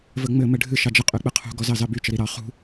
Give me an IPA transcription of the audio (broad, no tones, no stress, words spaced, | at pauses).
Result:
vəŋ͡mɘ mɘɖʱɨ ʃɑd͡ʒə qʼyk͡pɨqʰṳ ɡɔzɑzɑby t͡ʃəɾiɾɑ χṳ